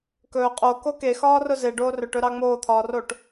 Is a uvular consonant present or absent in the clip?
present